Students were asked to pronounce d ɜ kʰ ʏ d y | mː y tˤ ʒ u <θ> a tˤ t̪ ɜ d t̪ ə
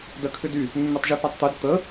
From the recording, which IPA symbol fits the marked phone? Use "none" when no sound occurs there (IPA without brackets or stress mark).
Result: θ